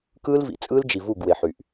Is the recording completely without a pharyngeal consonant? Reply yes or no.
no